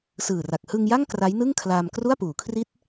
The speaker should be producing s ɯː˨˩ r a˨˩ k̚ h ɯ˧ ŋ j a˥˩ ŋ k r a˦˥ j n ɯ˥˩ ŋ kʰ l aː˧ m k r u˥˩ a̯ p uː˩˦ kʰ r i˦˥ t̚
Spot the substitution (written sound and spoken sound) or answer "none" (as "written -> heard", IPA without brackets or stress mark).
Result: none